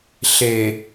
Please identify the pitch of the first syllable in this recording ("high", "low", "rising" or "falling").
low